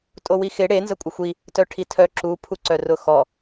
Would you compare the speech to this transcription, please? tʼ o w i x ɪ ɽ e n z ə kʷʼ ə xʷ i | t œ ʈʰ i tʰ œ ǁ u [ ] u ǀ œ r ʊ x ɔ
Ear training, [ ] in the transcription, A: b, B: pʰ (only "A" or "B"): B